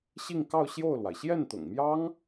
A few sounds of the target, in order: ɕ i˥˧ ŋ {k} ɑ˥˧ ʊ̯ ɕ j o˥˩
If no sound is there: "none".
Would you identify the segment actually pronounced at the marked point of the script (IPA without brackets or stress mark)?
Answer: k